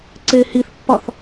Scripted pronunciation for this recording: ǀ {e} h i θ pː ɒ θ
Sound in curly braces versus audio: correct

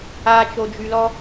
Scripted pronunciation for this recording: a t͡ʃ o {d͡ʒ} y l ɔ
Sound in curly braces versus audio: correct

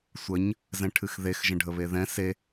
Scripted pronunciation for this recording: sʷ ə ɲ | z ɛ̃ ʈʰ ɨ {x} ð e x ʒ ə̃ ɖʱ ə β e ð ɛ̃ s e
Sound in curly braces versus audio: correct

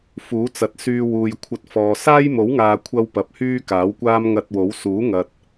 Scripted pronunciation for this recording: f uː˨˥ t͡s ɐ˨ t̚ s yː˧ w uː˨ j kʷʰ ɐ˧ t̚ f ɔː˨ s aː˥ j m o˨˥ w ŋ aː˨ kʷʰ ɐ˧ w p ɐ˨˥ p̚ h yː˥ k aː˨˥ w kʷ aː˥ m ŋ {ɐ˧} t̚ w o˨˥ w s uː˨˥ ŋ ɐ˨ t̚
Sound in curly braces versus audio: correct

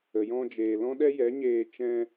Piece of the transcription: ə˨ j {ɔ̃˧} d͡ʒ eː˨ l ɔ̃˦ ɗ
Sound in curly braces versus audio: correct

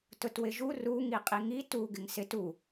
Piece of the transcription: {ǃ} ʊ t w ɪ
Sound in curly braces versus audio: incorrect: t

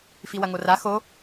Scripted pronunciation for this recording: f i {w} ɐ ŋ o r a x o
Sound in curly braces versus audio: correct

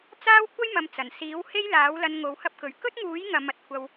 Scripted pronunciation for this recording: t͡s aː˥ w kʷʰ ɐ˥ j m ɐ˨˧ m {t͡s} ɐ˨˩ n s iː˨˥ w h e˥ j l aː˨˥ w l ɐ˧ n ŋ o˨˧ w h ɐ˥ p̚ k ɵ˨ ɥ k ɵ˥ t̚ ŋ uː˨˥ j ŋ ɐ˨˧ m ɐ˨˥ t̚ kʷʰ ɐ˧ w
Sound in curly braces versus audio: correct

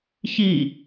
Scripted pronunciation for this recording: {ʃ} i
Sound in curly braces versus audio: incorrect: ç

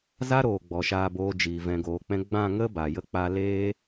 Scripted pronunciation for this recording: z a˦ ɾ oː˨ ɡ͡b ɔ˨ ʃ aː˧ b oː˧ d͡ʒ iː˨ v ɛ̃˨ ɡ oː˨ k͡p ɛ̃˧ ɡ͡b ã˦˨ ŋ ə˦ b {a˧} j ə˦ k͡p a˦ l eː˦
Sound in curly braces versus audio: incorrect: a˨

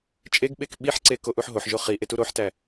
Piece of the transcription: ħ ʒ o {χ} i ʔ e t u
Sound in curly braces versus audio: correct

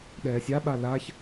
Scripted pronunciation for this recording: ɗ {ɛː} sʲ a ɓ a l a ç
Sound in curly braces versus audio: correct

